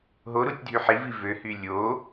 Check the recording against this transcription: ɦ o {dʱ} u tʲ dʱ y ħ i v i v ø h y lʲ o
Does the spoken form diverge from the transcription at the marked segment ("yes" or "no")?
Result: yes